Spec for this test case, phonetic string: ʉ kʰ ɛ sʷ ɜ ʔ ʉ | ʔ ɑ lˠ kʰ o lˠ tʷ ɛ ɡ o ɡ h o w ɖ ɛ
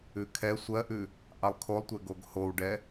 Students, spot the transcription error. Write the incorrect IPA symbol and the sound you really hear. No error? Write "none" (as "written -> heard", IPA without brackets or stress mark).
none